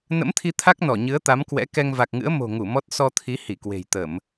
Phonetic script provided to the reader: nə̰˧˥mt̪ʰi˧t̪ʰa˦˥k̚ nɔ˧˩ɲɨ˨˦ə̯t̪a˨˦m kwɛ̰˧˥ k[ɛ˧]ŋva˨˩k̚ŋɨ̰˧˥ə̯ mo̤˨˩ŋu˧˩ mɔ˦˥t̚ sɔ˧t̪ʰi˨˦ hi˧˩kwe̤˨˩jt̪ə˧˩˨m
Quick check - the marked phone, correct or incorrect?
correct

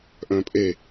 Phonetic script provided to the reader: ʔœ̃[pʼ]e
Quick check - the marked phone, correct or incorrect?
correct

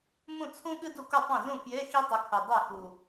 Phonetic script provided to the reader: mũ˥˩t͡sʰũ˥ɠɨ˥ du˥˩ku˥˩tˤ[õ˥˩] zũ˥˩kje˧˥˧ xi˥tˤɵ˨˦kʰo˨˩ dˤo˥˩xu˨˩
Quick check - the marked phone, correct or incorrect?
correct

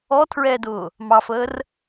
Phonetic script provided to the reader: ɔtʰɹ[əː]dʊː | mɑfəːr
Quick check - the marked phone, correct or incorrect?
incorrect: ɛː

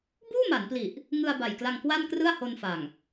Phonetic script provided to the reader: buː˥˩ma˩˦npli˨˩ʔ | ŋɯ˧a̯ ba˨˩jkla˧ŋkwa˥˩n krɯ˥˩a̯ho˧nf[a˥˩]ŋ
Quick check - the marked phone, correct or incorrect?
incorrect: a˨˩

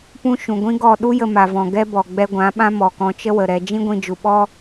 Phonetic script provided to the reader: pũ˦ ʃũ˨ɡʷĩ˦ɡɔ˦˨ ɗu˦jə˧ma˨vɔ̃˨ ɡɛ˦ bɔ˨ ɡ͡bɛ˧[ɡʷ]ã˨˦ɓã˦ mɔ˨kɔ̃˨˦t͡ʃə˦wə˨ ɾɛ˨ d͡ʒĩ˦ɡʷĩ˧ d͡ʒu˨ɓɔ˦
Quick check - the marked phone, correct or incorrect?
correct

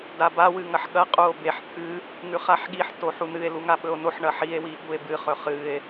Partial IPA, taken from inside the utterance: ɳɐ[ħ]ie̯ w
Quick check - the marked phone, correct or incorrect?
correct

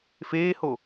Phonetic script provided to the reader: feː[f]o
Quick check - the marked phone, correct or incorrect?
incorrect: h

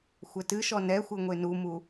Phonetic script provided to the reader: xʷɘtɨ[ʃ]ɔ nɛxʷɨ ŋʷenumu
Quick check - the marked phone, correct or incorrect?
correct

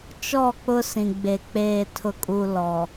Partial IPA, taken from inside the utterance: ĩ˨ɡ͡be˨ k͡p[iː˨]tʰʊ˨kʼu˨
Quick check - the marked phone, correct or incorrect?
incorrect: eː˨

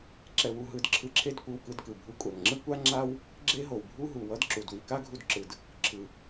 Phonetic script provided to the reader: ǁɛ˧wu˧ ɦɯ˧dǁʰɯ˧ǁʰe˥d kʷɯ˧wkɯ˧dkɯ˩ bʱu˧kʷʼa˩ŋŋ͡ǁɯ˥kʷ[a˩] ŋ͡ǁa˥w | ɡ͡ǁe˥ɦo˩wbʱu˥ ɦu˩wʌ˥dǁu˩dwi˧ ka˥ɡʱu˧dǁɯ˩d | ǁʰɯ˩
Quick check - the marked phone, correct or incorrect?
incorrect: a˥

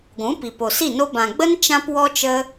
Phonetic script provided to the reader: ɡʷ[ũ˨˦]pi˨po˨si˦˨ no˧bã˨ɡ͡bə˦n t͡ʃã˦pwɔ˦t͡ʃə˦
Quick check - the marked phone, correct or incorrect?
correct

